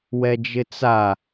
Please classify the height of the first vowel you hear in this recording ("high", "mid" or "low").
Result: mid